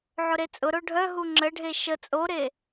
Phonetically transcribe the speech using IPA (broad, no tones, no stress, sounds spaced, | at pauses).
ʕ ʊ ɾ e t͡sʼ ʊ ɾ o ɖʱ œ ɦ u ŋ͡ǁ ə ɖʱ e ʃ ə t͡sʼ o ɾ e